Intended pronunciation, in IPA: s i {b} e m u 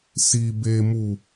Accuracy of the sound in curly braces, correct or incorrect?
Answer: correct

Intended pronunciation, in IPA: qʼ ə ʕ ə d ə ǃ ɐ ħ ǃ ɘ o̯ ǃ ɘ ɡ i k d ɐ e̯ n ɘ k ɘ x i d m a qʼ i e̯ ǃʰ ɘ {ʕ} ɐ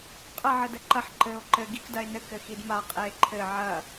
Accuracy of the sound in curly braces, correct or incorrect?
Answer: correct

